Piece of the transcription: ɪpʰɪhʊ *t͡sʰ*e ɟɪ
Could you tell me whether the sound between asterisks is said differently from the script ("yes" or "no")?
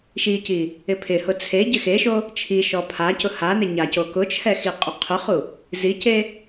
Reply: no